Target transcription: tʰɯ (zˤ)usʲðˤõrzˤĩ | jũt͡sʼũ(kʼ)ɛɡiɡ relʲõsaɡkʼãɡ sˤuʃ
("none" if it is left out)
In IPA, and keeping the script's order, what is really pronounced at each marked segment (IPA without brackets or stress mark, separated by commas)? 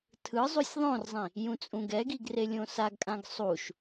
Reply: zˤ, ɡ